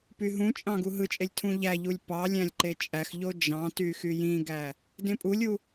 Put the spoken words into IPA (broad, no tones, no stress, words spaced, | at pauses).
pyɦũt͡ʃʼɑ̃ ɡuɦɯt͡ʃʼelʲ tʰũʎæʎulʲ pɑ lʲæ̃lʲǃet͡ʃʼæxʎo d͡ʒɑ̃ty xyjĩɡæ | dẽpʼulʲu